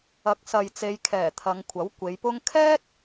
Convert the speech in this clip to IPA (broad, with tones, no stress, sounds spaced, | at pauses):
ɐ˨˥ k̚ s ɐ˨ j t͡s e˨˧ j kʰ ɛː˨˩ t̪ʰ ɐ˨˧ ŋ kʷʰ ɐ˨˥ w kʷ e˨˧ j p ʊ˧ ŋ kʰ ɛː˥ t̚